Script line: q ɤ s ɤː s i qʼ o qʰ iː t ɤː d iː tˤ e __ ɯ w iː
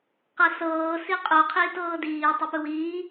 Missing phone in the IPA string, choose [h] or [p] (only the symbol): p